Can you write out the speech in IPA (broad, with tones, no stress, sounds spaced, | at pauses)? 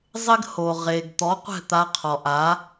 zˤ ɪ˥ ɡ h o˩ ʁ e˩ ɡ t̪ ɔ˩˥ qʷ ɛ̤˥˩ t̪ a˧ qʰ ɔ˩ ʔ a˩˥